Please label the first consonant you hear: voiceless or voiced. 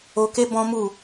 voiceless